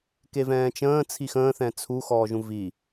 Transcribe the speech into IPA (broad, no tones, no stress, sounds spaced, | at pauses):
k e v ɛ̃ː t͡ʃ ə̃ː t͡sʰ i x ə̃ː θ ɛ̃ t͡sʰ u x ɔː ʒ ũ v i